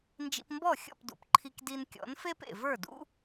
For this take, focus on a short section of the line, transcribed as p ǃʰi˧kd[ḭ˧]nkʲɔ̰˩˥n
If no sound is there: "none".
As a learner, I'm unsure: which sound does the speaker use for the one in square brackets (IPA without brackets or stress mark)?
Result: i˧